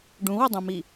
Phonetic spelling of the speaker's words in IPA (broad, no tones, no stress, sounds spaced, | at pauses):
ɖ ũ w ə dˤ ũ m i